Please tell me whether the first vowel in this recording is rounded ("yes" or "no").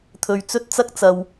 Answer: yes